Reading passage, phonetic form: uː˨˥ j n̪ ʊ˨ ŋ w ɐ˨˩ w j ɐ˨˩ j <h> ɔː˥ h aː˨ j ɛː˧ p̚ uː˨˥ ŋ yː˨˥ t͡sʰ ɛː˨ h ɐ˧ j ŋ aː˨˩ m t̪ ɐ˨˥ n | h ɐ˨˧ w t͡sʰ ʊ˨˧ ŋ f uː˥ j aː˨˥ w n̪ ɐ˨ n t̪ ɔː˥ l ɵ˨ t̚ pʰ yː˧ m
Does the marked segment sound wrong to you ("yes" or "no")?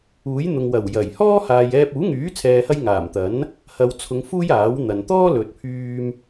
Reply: no